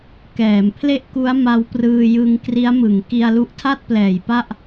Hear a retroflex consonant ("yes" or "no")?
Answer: no